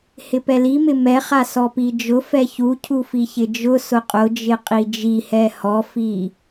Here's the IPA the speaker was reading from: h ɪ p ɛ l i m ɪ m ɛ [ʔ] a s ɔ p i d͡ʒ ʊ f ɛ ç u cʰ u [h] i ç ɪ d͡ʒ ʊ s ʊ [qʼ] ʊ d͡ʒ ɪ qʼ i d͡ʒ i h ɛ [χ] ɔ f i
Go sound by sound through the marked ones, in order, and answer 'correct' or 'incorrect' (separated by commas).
incorrect, incorrect, correct, incorrect